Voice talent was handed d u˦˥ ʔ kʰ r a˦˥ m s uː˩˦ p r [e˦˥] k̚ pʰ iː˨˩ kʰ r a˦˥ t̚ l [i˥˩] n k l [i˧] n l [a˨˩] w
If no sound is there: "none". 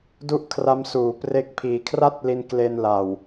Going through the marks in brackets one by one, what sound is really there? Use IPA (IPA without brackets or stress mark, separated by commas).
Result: e˦˥, i˧, e˧, a˨˩